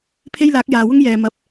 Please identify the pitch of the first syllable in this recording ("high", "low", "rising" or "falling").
high